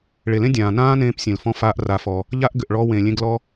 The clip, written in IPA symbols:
ɭe˨lẽ˦ dʲãː˨ nãː˦nẽː˧p sʲẽ˨lfɔ̃˧ faː˧ʔra˨fɔ˨ | ʎa˦ʔɡʏ˨ʔɭɔ˧wẽ˨ lʲẽ˧ɡlɔ˧

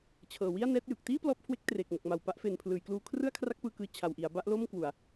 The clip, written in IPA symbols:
t͡ɕʰɤː˨˩wi˥˩a̯ nɛː˦˥t̚jɯ˨˩k̚ tiː˥˩ plɔː˦˥p̚kʰwe˦˥k̚ treː˨˩k̚mo˨˩k̚ma˨˩w pa˦˥ʔfe˨˩npʰlɯː˩˦jkluː˧ kʰrɯ˥˩a̯kʰra˦˥k̚ pɯː˧kɯː˧ t͡ɕʰa˨˩wʔi˩˦a̯ ba˥˩ʔlo˥˩mkwu˨˩a̯

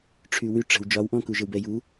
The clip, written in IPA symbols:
ʈ͡ʂʰywy ʈ͡ʂə̤w d͡ʒɒwʔɔ̃ kuʒəwbɛ ju

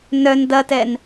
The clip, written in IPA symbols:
nœn dɐtɛn

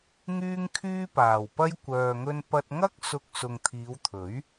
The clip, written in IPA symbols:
ŋyː˥ŋkʰyː˥paː˨˩wpɐ˥j kʷœː˨ŋɵ˧n pɐ˧t̚ŋɐ˥k̚ sʊ˧k̚sʊ˨ŋ t̪ʰiː˨˧wt̪ʰɵ˨˥ɥ

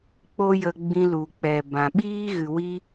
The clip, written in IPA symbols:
k͡po˦jə˧ ɡ͡bĩ˧lu˨k͡pɛ˨bã˨ ɓiː˦ɣɨ˨wi˧

